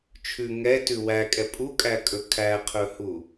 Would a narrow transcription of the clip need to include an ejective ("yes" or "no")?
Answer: yes